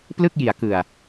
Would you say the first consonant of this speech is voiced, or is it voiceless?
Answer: voiceless